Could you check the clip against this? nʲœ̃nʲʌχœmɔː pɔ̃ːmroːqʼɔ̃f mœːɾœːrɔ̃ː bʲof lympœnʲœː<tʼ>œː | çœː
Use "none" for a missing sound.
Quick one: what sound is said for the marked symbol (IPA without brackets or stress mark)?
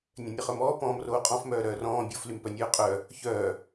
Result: qʼ